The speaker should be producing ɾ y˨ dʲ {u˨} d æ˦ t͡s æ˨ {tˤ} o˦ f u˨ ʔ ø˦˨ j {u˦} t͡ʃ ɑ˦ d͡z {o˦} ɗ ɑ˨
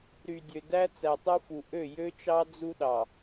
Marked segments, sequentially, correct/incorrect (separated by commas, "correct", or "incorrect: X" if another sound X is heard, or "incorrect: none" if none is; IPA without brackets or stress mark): incorrect: ø˨, correct, incorrect: ø˦, incorrect: u˦